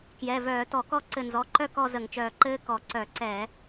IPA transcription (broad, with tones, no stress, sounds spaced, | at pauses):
k j ɛ˩˧˩ v œː˧˩˧ t ɔ˧˩˧ k ɔ˥˧ ǀ ɘ˧˩ n z ɔ˩˧˩ ǃ œ˥˧ k ɔ˥˧ z ə˧˩˧ ŋ t͡ʃ œː˧˩ ǃ ɘː˥ k ɔ˧˩˧ ǀ œ˧˩˧ ǀ ɛ˧˩˧